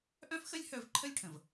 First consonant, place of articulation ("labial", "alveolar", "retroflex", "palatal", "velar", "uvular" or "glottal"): glottal